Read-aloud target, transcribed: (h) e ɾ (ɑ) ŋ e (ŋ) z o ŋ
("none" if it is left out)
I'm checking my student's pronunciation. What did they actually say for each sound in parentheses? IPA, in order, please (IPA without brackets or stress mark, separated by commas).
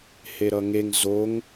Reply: h, ʌ, ŋ